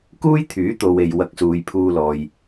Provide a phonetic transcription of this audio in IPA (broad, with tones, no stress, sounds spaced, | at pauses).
k uː˥ j t̪ʰ yː˨˥ t̪ o˨ w e˨ j w ɐ˧ k̚ s uː˨ j pʰ uː˧ l ɔː˨ j